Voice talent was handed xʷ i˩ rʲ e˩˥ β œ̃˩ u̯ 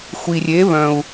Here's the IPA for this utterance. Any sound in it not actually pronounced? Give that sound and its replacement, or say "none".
none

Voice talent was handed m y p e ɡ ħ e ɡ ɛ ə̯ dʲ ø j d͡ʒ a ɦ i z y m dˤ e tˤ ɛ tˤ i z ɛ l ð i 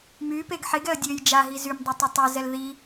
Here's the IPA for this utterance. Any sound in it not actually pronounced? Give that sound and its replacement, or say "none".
none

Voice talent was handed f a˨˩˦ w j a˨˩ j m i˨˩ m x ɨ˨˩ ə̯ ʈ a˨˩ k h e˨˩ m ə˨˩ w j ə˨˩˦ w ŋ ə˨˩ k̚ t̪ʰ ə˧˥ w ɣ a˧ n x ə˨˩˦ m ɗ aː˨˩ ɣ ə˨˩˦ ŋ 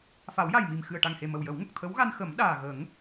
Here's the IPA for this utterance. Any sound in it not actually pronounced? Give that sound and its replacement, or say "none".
k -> ŋ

